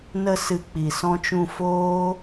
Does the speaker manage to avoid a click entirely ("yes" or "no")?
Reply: yes